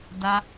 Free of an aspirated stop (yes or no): yes